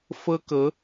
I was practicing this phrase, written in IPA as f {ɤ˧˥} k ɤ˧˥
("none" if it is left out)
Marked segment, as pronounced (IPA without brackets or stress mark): ɤ˥